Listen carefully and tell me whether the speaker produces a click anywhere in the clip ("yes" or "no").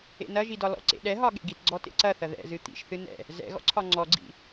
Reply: yes